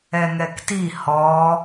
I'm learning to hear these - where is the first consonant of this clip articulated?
velum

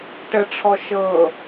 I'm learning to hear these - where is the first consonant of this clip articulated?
retroflex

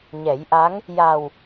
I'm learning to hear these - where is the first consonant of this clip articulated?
palate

